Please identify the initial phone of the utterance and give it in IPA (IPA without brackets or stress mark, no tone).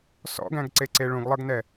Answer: s